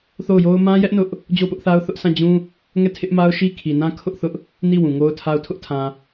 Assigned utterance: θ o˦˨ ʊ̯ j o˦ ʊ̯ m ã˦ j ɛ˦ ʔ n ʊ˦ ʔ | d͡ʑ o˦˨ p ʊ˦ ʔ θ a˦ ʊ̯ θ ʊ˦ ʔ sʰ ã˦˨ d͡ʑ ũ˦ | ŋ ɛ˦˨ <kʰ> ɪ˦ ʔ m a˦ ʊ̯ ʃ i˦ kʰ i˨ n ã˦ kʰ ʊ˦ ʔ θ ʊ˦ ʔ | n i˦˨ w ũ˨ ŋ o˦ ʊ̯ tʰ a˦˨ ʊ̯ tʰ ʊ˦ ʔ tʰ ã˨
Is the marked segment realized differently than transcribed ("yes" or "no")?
yes